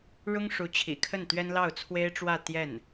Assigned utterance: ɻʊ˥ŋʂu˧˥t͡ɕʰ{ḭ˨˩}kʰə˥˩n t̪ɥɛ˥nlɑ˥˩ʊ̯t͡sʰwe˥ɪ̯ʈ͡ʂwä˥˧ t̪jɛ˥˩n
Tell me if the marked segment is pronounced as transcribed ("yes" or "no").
yes